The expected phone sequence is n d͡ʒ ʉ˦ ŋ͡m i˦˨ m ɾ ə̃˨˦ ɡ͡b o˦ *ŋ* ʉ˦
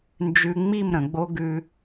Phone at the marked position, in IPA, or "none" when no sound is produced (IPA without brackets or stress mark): ɡ